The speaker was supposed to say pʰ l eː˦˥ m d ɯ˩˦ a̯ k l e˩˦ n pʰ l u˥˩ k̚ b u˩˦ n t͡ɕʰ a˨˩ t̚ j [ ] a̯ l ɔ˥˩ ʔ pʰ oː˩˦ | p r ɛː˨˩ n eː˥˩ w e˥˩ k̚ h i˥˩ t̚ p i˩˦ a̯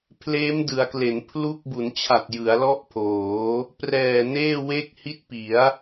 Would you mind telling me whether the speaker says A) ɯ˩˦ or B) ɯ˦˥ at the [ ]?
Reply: A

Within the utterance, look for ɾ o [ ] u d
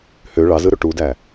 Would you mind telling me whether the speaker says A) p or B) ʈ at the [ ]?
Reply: B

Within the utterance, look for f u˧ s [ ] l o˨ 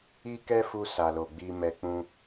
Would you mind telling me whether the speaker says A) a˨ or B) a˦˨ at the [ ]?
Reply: A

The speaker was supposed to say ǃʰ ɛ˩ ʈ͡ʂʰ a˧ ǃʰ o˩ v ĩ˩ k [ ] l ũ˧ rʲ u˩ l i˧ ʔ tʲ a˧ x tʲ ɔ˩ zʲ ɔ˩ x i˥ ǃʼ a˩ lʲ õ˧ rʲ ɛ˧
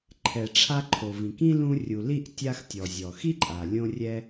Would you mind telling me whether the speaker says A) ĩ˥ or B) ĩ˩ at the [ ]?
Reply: A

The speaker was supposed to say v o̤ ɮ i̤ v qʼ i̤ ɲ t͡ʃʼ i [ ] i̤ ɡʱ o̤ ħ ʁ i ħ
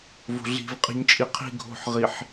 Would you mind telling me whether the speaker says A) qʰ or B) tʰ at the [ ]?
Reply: A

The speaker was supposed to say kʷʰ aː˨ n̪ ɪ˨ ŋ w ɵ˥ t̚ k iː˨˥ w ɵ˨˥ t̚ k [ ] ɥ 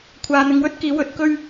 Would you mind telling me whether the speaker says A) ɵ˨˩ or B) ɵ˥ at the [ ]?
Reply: B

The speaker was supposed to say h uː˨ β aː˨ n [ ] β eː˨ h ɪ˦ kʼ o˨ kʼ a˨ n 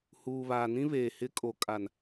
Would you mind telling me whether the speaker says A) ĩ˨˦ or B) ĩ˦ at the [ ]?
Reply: B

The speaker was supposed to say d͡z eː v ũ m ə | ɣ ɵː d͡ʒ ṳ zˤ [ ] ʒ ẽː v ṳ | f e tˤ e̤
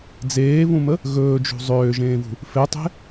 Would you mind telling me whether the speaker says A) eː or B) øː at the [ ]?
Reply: B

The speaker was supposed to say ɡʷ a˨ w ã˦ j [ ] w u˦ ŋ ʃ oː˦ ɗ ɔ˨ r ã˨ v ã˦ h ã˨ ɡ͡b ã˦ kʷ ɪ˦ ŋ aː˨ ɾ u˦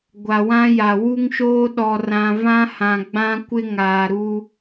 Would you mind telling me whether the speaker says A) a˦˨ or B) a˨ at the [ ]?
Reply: B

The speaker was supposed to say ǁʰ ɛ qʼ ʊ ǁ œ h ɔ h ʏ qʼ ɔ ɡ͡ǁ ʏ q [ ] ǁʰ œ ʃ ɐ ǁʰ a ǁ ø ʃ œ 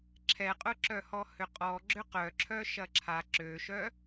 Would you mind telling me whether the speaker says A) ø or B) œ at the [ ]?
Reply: B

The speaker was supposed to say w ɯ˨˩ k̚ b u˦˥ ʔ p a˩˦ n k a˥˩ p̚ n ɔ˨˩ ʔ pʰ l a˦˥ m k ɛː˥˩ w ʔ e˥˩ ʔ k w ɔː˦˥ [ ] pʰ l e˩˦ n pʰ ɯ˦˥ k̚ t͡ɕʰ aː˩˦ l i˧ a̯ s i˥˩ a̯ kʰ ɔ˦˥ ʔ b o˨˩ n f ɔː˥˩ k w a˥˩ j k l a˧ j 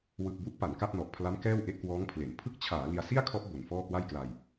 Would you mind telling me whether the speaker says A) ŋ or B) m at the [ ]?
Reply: A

